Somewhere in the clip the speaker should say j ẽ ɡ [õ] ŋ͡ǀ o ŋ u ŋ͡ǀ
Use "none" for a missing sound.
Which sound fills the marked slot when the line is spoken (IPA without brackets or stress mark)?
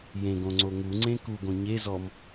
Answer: õ